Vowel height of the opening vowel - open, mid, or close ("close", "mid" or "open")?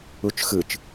close